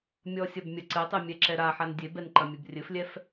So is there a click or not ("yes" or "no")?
yes